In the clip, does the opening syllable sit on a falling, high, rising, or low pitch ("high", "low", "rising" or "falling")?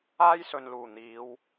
high